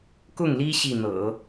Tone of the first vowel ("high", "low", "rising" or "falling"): falling